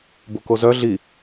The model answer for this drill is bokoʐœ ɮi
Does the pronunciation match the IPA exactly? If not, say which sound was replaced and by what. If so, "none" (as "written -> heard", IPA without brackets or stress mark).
ʐ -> z